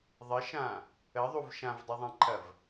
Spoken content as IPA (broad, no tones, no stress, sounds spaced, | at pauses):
ðˤ ə ʃ ã | ə ðˤ u v ʃ ã v dˤ u ðˤ ɑ̃ ǃʰ ɐ v